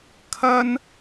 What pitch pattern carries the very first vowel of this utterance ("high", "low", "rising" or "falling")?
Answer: high